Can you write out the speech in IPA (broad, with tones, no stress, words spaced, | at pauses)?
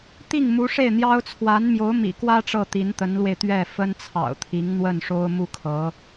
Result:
t̪i˥˩ŋmu˧˥ʂe˥˩ɪ̯n̪jɑ˥ʊ̯ t͡sʰwa˧˥nmjo˧˥ʊ̯mḭ˨˩kwä˥ ʈ͡ʂɤ˥˩t̪i˧˥nt̪ə˧˥nlwe˧ɪ̯ t̪ɥɛ˥˩ fə˥nt͡sʰɑ̰˨˩ʊ̯t̪ʰi˧˥ŋ n̪wə˥˩nʂo˥ʊ̯ mu˥˩kʰɤ˧˥